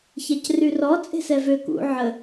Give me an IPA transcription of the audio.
çacryrɔ t͡sʼe̤sɛvø kṵ ʕə

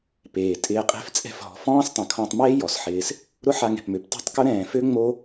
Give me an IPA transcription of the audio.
peː˨tʼɪː˧ qʼe̤˧ft͡sʼɛ̤˧fɦɔ̤˨fɔ̃ː˦s tˤɛ̃˨kʰɔ̃˧tˤ meː˦ jɔ˨sħɪː˧s | ɾʊ˦ħa˧ŋɛ̤˨pmø˨p tɔ̤˦tˤkʊ˦ ɾɛ̃ː˨fø˦ ŋ͡mo˦

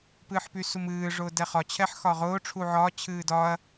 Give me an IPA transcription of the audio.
pɨːħpysumɨː ʐʊːdɛχɒ t͡ɕʰɛħxɒʁʊː ʈ͡ʂʰuʕɒː t͡ɕʰɨːdɒɐ̯

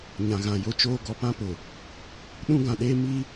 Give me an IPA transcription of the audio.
ɲã˨ɣã˨jo˦t͡ʃoː˦ ɡɔ˨pã˦pʊ˨ | ɗũ˦ɡã˨ɗeː˦ mi˦

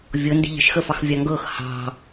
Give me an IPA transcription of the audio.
vʲɤndi̤ ʎə̤ʃxəfɑxvʲɑ ŋɡɤx hɑ̤

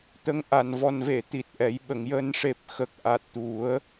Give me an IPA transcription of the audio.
t̪ə˧ŋʔa˨˩n vɔ˨˩nve˨˩˨ t̪i˨˩t̚ʔɛ˨˩˦j ɓə˨˩˨ŋjəː˧n ʂe˨˩p̚ xə˨˩k̚ʔa˨˩t̚t̪u˨˩˦ə̯

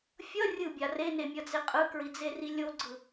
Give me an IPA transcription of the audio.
fʲʌ rʲɯbʲa renemʲʌd͡ze qʼɯkɹid͡zeri lʲoɡ͡ǀɯ

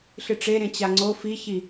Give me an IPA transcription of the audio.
ɬɨʈ͡ʂeɾẽ t͡ɕaŋ͡ǀo fiçi

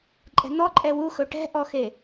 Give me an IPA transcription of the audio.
ǃʼɛ̤n̪ɔǃʼɛ wuxɵ ʈɛ̤ʔɔxe

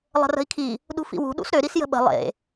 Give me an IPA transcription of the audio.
lˠə̤rə̤i̯kʰi | ɗṳfḭwṳ ɗṵsɾø ɾisjə̤ɓə̤ lˠḛ

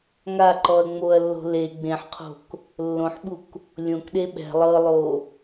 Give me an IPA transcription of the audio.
ŋaǃɔɐ̯ŋ͡moɐ̯ lːo̤le ɡ͡bẽħqʰo̤k | lːõħɓuk | lʲõkɗe ɓɛ̤ lˠɤlˠo

